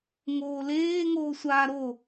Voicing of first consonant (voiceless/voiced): voiced